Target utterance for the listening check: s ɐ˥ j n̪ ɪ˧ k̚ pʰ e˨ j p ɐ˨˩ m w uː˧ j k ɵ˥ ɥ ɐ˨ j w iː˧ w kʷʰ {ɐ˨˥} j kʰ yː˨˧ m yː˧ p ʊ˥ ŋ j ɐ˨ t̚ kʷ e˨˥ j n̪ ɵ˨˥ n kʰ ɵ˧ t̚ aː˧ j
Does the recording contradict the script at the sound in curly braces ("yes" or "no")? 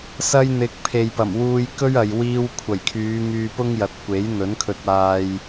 yes